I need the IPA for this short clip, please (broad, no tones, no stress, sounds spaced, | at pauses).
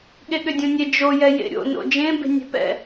ɠ e ɠ ʏ dʲ õ nʲ e d͡ʒ o j ɛ j ḛ ɾʲ o̰ n o̰ d͡ʒ ẽ b e̤ nʲ ɛ̤ p ɛ̰